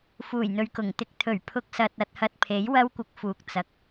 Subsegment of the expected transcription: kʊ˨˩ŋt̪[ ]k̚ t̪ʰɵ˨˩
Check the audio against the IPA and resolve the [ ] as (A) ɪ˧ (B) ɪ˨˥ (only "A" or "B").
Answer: A